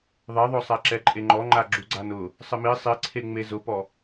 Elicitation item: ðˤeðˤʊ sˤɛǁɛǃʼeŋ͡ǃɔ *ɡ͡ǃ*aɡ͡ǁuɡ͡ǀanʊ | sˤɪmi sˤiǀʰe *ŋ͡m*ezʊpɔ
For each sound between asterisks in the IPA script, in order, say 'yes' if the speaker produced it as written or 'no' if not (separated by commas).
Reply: no, yes